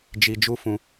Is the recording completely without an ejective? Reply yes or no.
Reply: yes